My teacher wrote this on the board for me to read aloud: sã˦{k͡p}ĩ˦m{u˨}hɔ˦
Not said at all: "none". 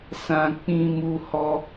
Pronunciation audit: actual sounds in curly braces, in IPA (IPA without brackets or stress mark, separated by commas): k͡p, u˦